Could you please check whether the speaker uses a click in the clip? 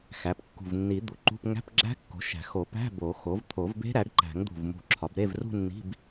yes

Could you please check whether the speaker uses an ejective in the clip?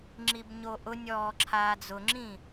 no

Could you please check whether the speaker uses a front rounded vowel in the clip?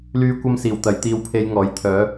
yes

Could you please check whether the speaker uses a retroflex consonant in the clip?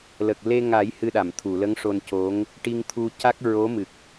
yes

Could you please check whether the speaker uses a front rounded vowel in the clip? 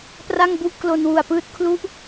no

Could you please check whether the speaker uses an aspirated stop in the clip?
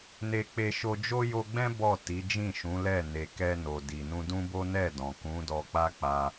no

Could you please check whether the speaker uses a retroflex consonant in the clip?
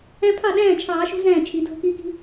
no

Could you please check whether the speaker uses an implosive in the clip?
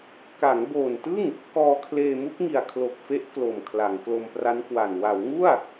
no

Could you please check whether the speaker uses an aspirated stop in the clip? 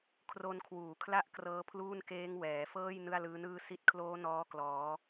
yes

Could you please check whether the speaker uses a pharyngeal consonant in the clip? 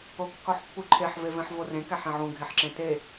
yes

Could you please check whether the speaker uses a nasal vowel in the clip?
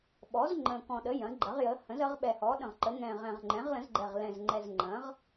yes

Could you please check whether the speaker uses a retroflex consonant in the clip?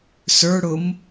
yes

